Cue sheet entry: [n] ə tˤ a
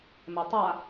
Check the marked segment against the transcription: incorrect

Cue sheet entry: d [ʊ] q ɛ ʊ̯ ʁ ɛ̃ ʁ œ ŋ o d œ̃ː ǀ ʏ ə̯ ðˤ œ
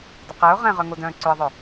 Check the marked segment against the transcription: correct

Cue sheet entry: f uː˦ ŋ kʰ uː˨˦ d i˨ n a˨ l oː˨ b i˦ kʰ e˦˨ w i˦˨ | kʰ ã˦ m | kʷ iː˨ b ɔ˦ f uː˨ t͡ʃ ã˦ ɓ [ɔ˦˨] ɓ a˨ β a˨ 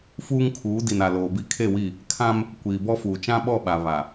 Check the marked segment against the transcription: correct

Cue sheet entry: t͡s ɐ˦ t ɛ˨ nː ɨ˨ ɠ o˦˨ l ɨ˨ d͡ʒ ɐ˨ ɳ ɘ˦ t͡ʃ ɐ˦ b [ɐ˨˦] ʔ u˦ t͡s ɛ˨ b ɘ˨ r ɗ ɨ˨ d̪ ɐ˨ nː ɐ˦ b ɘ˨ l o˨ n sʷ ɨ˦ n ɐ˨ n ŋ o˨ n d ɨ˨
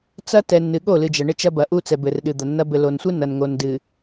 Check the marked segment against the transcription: incorrect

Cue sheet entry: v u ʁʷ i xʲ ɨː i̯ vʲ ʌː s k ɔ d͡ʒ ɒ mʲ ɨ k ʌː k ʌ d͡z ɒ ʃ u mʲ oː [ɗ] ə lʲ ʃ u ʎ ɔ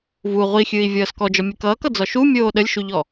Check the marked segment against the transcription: correct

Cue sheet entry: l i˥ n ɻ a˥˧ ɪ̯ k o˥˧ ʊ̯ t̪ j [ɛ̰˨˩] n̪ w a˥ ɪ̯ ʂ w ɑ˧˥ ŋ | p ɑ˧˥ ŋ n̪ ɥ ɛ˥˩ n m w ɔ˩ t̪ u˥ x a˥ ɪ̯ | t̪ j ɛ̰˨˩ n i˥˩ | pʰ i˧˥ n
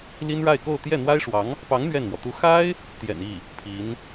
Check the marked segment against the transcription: incorrect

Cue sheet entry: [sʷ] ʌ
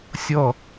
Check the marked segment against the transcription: incorrect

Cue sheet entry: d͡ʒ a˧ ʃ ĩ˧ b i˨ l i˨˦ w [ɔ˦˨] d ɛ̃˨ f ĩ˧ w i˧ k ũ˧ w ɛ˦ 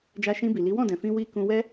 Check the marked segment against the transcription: incorrect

